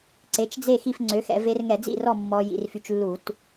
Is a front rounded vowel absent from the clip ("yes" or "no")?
no